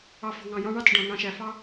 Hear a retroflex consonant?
yes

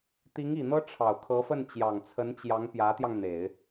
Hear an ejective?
no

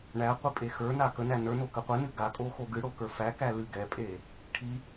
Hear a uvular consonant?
yes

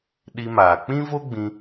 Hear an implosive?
yes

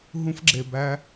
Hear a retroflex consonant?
no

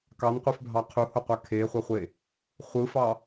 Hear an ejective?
no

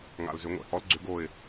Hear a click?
yes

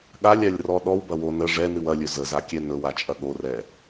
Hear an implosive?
yes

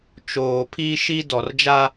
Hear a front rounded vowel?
no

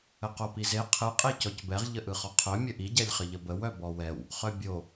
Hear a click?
no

